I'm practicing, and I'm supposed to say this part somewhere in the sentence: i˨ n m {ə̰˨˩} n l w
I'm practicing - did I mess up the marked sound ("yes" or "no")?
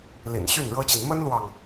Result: yes